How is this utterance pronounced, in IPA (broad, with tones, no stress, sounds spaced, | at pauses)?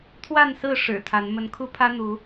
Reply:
t̪ʰ w a˥˨ n s ɹ̩˥˨ ʂ ɻ̩˨˩ t̪ʰ a˨˦ n m ə˨˦ n kʰ u˦ pʰ ä˦ n̪ u˨˦